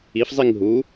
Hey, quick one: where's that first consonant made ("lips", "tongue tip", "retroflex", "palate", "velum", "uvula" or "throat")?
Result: lips